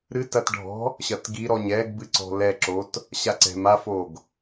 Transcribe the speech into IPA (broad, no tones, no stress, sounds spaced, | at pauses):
ɾ ɨ t ɐ t ɖʱ ɔ̤ | ɕ ɐ t ɡ i ɾ ɔ ɲ ɛ ɡ b ɨ ǀ ɔ̤ l ɛ ǁ o t | ɕ a ǀ ɛ̤ m a f o ɡ